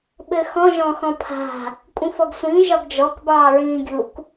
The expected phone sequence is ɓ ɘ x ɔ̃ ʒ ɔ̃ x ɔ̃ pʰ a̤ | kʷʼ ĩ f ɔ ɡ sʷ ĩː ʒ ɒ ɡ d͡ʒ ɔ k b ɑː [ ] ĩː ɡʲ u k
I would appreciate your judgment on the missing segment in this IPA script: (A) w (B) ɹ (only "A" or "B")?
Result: B